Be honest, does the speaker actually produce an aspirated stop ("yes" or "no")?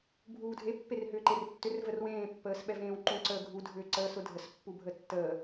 no